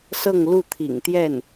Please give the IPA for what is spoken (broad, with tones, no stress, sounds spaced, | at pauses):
s ɤ˥˧ ŋ l u˥˩ t̪ʰ ḭ˨˩ ŋ t̪ j ɛ˥˩ n